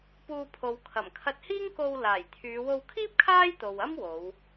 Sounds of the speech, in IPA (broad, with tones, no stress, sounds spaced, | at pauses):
p uː˧ pʰ o˨ w kʰ ɐ˨˩ m kʰ ɐ˧ t̚ h iː˥ ŋ k o˧ w l aː˨˩ j t̪ʰ yː˨˧ w o˧ w kʰ iː˥ p̚ kʰ aː˥ j t̪ o˨ w ɐ˥ m w o˨˧ w